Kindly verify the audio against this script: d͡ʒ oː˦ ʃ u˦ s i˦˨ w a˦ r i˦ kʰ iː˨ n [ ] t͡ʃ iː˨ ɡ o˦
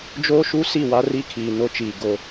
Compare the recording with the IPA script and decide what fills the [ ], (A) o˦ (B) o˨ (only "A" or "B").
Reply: A